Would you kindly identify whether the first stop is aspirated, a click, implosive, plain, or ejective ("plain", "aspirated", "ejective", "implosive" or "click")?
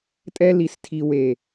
ejective